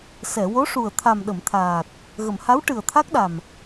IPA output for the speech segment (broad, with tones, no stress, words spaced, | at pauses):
sɛ˨˩˨wo˧˥ʂu˨˩ə̯ t̪ʰa˨˩mɗə˨˩˨mt̪ʰaː˨˩t̚ | ɣə˨˩˨m ha˧˥wʈɨ˨˩ə̯t̪ʰa˦˥k̚ɗa˨˩m